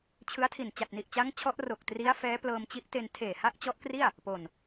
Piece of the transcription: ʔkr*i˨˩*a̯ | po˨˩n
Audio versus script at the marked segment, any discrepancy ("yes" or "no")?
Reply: yes